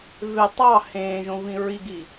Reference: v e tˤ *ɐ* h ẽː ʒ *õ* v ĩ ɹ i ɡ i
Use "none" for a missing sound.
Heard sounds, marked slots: ɑ, õ

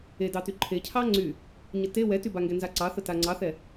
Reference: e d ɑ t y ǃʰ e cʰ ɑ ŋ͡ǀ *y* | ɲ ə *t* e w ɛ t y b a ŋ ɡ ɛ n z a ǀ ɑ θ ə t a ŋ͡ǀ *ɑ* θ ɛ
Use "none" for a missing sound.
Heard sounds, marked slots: y, t, ɑ

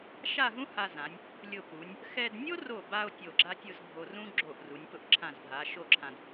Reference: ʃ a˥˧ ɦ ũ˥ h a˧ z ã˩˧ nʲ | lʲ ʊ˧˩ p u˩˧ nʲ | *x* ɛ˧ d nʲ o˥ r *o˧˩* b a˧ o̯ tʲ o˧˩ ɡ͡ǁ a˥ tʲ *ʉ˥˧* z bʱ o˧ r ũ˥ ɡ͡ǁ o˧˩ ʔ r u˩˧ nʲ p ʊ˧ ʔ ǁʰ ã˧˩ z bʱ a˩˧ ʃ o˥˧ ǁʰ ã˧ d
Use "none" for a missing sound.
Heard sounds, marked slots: x, o˧˩, ʊ˥˧

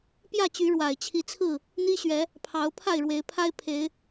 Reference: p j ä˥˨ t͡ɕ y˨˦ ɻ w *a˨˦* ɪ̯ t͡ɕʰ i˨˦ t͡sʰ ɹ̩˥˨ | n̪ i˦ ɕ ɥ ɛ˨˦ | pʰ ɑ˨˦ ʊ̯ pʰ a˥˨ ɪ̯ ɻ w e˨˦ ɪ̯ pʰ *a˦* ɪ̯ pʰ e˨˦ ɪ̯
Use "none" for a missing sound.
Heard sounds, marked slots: a˨˩, a˦

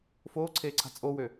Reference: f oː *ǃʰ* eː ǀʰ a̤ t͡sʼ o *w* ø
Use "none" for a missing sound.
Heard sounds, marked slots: ǀʰ, w

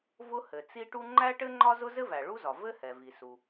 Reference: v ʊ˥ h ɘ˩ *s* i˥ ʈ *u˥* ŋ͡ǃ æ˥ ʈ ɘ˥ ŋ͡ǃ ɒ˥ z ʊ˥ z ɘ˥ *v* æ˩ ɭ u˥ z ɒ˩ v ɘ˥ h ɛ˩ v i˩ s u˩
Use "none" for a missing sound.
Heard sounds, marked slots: t͡s, u˥, v

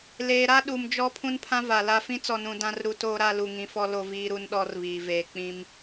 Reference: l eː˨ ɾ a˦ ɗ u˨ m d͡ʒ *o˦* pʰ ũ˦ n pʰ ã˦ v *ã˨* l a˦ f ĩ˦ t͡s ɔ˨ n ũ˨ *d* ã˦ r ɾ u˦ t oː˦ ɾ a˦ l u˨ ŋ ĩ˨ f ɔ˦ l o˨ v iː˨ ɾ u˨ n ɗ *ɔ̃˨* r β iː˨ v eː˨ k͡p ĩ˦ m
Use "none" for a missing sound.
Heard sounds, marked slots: ɔ˦, a˨, d, ɔ˨

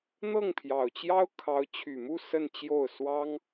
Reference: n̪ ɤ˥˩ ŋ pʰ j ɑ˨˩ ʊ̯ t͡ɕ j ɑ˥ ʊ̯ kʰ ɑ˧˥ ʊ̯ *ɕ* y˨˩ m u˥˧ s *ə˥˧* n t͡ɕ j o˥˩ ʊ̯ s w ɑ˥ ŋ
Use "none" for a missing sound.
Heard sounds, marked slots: t͡ɕʰ, ə˥˧

